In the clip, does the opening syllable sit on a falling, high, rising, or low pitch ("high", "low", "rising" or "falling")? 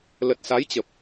low